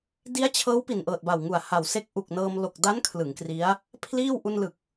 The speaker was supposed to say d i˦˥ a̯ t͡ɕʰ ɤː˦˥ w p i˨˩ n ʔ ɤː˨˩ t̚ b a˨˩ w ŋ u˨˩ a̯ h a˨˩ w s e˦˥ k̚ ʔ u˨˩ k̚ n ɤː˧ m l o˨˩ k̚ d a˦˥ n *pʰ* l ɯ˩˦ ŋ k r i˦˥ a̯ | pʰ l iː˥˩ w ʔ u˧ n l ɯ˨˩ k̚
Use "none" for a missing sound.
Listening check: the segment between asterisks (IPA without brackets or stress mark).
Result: kʰ